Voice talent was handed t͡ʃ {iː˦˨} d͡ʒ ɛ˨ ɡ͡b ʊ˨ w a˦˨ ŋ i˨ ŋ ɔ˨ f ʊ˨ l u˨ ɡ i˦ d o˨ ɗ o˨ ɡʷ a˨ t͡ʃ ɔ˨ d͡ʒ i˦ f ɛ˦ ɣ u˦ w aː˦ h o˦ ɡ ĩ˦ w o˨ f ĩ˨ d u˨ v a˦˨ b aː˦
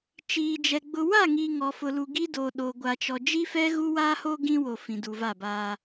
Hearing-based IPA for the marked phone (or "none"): iː˨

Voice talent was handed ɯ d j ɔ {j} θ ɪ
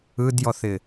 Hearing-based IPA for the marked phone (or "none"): none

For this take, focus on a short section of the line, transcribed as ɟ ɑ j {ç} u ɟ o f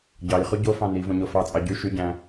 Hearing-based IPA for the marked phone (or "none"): χ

